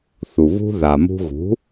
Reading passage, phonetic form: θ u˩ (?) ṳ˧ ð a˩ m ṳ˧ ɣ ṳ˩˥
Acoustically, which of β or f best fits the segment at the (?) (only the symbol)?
β